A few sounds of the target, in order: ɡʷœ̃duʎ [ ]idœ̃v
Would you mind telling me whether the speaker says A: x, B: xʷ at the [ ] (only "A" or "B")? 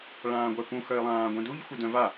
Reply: B